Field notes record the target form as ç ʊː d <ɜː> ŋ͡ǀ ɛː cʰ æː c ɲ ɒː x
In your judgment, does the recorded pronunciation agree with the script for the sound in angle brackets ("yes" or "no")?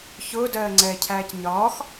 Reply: yes